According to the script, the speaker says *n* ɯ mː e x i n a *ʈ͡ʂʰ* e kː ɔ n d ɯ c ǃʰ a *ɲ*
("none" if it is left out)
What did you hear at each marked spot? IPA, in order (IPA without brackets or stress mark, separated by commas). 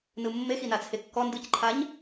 n, t͡sʰ, ɲ